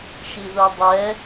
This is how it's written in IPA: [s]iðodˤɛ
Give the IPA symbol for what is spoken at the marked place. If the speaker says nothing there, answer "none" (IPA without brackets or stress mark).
ʃ